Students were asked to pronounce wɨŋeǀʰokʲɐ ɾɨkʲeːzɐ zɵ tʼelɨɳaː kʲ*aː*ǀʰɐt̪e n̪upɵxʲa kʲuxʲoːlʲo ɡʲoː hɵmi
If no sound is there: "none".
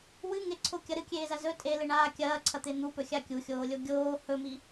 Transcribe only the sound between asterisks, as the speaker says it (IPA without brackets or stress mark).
ɐː